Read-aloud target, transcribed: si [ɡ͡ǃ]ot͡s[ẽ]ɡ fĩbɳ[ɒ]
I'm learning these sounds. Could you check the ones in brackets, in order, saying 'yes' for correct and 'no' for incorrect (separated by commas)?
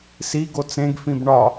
no, yes, yes